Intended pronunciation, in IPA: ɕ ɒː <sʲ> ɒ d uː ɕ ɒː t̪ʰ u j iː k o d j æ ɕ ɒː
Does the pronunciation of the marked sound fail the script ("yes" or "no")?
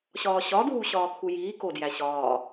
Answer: yes